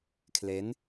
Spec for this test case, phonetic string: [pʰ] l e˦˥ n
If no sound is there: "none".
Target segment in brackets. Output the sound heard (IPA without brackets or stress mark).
kʰ